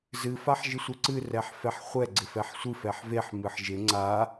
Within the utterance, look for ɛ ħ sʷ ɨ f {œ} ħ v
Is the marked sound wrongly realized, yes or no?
yes